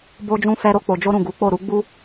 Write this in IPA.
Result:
bo˦d͡ʒũ˦fɛ˦ɾo˦ k͡po˧d͡ʒo˦ɾũ˦˨ ɡu˨˦k͡po˦˨ ɾu˨˦ɡ͡bu˦

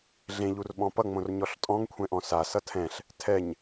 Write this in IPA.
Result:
ɮẽʎurɓɔ̃ pʌŋ͡mõr ɲɔɬtʼɔ̃ŋkʷʰɛ̃ʔɔ̃ sa sʌtʰɛ̃ɬ | tʰɛɲ

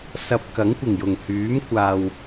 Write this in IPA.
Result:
sɐ˧p̚kɐ˨˥ŋ kʷɪ˨˩ŋjʊ˨˩ŋ hyː˨˥mkʷaː˨w

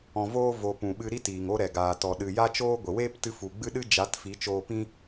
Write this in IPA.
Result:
ɔ̃˨voː˧vo˨ pũ˨ɓɨ˧ɾi˦ tiː˨ŋo˦ ɾɛ˨ɡaː˨ tɔ˨ɗɨ˨ ja˦t͡ʃoː˦ɡʷə˨ weː˦ptɨ˧fu˨ ɡ͡bɨ˦ɗɨ˦d͡ʒa˨˦t fi˨˦t͡ʃoː˧ pĩ˦

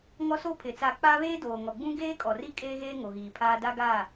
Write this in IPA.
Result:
ŋɔ˦soː˦pʰɪ˨ t͡saː˨ k͡paː˦βeː˦doː˨ ŋɔ˨ɡ͡bũ˦ ɡeː˦kʼɔ˨ri˦ kʼeː˦ɣeː˦ ŋo˨ɣiː˨pʰaː˦ da˦ɡa˦˨

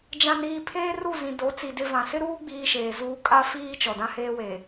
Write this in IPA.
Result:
d͡ʒã˨niː˨ pʰeː˦ru˦˨zĩ˨ do˨˦t͡si˨dɪ˦vã˨ sɪ˦ɾuː˦ ɡ͡biː˦ʃeː˨zuː˦ kʼa˦fiː˦ t͡ʃɔ˨dã˦heː˦we˨

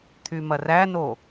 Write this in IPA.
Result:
t̪ʰymɐræno

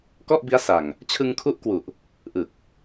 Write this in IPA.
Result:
kɔ˥˩ʔbi˦˥a̯sa˨˩ŋ | t͡ɕʰɯ˧ŋkʰu˦˥ʔkwu˨˩ʔ | ʔɯ˨˩k̚

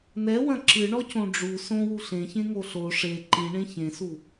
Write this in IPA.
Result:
nɛwɐ̃ ǁɨɳɔcõ ɖ͡ʐu sõ wuɬẽ çẽŋoɬo ʂe ǃĩɳẽ çẽsu

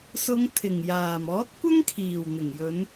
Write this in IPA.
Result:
sʊ˨˧ŋ t̪ʰɪ˨˩ŋjaː˨˩m ɔː˨˥t̚kʷɐ˥ŋkʰiː˨˩w n̪ɪ˨˩ŋjɵ˨˧n

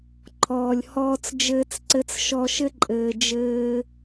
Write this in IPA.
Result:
ǃʰɔː˩lʲ hɔː˧t͡s d͡ʒɘː˧t͡sǀɘ˧t͡s ʃɔ˧ʃɘ˥ǃʼɘː˩ d͡ʒɘː˧

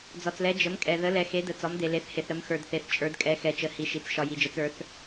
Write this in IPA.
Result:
d͡zɒ˨t͡slɛ˨˦ d͡ʒə˨˦mkʼɛ˨ ðə˨˦lɛ˨ xe˨˦də˨˦ t͡sɒ˨˦mde˨le˨˦θhe˨θ ɾə˨˦mxə˞˨dθe˨˦θ t͡ʃʼə˞˨˦dkʼɛ˨˦xɛ˨t͡ʃə˨˦ hi˨˦ʃi˨˦t͡s ʃɒ˨ji˨d͡ʒə˨˦t͡s ə˞˨˦θ

